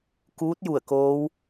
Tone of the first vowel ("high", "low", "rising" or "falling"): rising